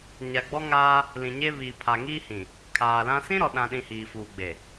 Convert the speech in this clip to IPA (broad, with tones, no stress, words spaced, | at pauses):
ɲa˨ɡ͡bɔ˦ŋaː˦ | lĩ˨ɲe˦ βiː˨ pʰa˨ŋiː˦hĩ˨ | kʰaː˨lã˦ sĩ˦ɾɔ˨ɗã˨ɗĩ˨ hiː˨fuː˨ɡ͡be˨